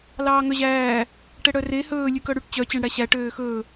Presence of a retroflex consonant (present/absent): present